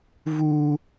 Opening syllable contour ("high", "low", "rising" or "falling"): high